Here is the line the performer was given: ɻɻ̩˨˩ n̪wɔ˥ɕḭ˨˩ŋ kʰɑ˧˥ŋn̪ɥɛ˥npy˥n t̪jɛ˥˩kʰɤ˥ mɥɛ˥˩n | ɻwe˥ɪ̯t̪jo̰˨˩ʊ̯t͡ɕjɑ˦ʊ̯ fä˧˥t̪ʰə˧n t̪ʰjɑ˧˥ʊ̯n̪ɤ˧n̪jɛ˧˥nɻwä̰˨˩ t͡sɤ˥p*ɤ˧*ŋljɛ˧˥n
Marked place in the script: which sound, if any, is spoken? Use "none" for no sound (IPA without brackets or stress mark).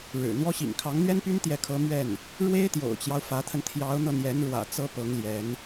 ɤ˧˥